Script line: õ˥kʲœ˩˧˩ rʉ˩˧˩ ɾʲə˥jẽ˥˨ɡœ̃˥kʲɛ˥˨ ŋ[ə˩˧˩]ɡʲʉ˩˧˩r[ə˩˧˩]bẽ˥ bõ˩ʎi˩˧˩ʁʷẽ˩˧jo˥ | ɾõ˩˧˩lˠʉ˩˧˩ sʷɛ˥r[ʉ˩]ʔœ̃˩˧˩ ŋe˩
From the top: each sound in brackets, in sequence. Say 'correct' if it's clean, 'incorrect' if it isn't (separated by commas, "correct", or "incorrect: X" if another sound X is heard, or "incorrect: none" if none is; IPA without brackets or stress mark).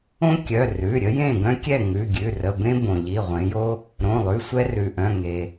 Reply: incorrect: ʉ˩˧˩, correct, correct